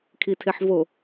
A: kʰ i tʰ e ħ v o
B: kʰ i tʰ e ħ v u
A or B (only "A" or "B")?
A